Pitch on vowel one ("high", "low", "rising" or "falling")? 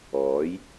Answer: rising